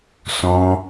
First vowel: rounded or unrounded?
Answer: rounded